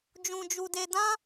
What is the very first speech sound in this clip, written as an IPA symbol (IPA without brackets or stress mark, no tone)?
d͡ʒ